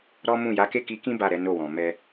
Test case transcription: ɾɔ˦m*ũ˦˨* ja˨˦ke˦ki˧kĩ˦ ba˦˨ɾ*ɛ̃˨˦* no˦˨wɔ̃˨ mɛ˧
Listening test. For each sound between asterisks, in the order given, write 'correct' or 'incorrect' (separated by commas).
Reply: correct, incorrect